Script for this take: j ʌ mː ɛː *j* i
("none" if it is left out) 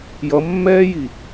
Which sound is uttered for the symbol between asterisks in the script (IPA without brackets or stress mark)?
j